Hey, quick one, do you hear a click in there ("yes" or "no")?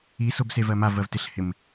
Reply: no